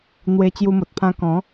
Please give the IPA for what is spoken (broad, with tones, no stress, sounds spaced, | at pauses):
n̪ w e˧ t͡ɕ j u˧ m o˨ t̚ pʰ ã˧ k ɔ̃˨˦